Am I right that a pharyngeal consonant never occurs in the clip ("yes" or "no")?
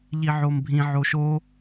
no